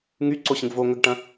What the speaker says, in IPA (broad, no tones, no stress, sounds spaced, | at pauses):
ŋ y ǀ o ɕ ə̃ ɡ v o ŋ ə ɡ ʈ ɐ̃